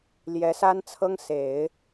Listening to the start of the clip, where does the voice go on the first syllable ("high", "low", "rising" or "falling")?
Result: rising